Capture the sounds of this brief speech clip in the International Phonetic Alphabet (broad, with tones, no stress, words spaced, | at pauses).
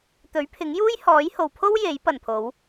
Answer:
t̪ɵ˨˥ɥpʰɪ˨˥ŋjuː˥j hɔː˨˥jho˨wpʰo˥w je˨˥j pɐ˨˩npʰo˨˧w